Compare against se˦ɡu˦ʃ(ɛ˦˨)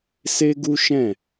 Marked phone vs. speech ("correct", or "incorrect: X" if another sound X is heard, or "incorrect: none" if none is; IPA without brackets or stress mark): incorrect: ɛ̃˦˨